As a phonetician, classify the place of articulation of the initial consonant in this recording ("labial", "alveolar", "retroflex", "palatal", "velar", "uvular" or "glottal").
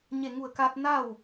palatal